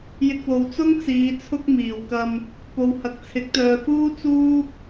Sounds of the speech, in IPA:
j ɪ˧ k̚ w o˨ w t͡s ʊ˥ ŋ t͡s iː˨˧ t͡sʰ ʊ˥ k̚ m iː˨˩ w k ɐ˧ m | p o˨ w h ɐ˨ k̚ t͡sʰ ɪ˨˥ k̚ t̪ œː˨ f uː˥ t͡s uː˥ p̚

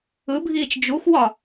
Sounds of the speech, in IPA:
ɯ bʱ iː t͡ʃ d͡ʒ u x w ɒ

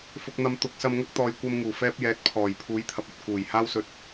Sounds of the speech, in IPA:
f ʊ˨ k̚ n̪ ɐ˨ m t̪ ʊ˨˥ k̚ s ɐ˧ m ŋ ɐ˥ k̚ t̪ ɔː˨ j kʷ ɐ˧ m ŋ uː˨˩ f ɛː˧ p̚ j ɛː˨˥ t̚ pʰ ɔː˨˩ j pʰ uː˨˥ j t̪ʰ ɐ˨ p̚ ɵ˨ t̚ k uː˨˩ j h aː˥ w s ɵ˧ t̚

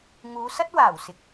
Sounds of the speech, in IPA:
ŋ uː˨˧ s ɐ˥ t̚ w aː˨˩ w s ɪ˨ k̚

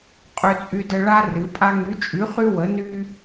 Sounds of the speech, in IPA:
qʼ ø˦ t͡sʼ y˦ d ə˦ ɭ a˦ r ɨ˨˥ pʼ a˦ ŋ y˨˥ t͡ʃʼ y˨˥ χ y˦ w ə˨˥ n y˦

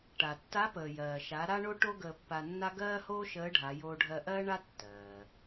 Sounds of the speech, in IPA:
ʈ a˩ tː a˧˥ p əː˩ j ɜː˩ ʃ a˩˧ ɾ a˥ ɳ o˥ ʈ o˥ ɡ əː˧ pː a˧ nː a˥ ɡ ɜː˥ h oː˥ ʃ əː˧˥ ɖʱ a˩˧ j oː˧ ɖʱ ɜ˧ ʔ ɜː˥ ɳ a˥ tː ɜː˩

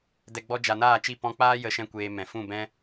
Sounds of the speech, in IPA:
d ɛ˨ ɡ͡b ɔ˧ d͡ʒ a˨ n aː˦˨ t͡ʃ i˦˨ p ɔ̃˧ k͡p aː˦ j ə˦˨ ʃ ɛ̃˦ kʷ eː˧ m ɛ̃˨ f ũ˦˨ b ɛ̃˦

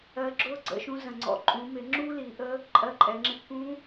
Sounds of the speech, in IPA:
ɜ˧ ɡ͡ǁ ʊː˥ ɡ͡ǀ ə̰˧ ʃ ũ˧ z ə̃˩ ŋ͡ǀ ɔ̰˩ ǃʼ ũ˩˧ m ɪ˩˧ ŋ͡ǁ uː˥ l iː˩˧ ʔ ə˧˥ | ǃʼ ɜ˧ ǃʼ ɛ˩˧ ŋ͡ǁ ɪ˧ k ũ˧˥

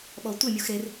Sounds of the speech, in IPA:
ɓ ɔ tʷ ɪ mʲ u x ɾ e r

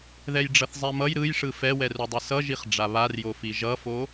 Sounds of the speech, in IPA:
ð ɛ j ɖ͡ʐ ʌ θ zˤ ɛ m ʌ j ɾ ɯ j ʂ ɯ f ɛ w ɛ r u dˤ ɯ s ʌ ʒ i χ ɖ͡ʐ a β a r j o f i ʒ ʌ f o

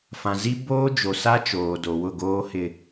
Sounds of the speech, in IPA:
f ã˨ z i˦ b oː˦ d͡ʒ o˨ s a˦ t͡ʃ oː˨ d o˨ w ʊ˦˨ ɡ oː˦ h ɪ˦

